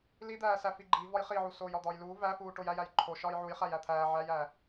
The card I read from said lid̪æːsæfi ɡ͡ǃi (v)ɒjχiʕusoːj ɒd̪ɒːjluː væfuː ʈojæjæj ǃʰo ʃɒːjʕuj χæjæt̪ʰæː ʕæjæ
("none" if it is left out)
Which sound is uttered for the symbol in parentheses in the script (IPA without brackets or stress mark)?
v